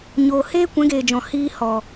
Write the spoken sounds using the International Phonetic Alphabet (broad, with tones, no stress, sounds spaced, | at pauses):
ɲ oː˨ h eː˦ kʷ ɛ̃˨˦ ɡ eː˨ d͡ʒ ɔ̃˨ h iː˧ h ɔ˨